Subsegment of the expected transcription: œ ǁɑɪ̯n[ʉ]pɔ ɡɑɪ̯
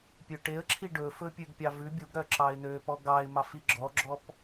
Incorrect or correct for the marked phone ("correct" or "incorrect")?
incorrect